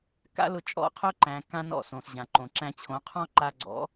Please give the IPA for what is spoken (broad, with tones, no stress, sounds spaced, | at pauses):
k a̰˦ l ʊ˧ t͡ʃʼ ɔ̰˦˨ qʰ ʊ˦ ǃ æ̃˨ k ã˦ n ɔ̰˦˨ s õ˨ s ʑ ã˨ ǃ õ˨ ǁ æ̃˧ t͡ɕʰ õ˨˦ qʰ ɔ̃˦ ǃ a˧ ɡ͡ǀ ɔ̰˨˦